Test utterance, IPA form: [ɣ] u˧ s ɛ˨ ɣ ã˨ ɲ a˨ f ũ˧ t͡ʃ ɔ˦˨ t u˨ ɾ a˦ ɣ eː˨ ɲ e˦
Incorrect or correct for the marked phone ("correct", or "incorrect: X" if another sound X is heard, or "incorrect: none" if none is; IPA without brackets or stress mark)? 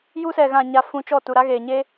incorrect: j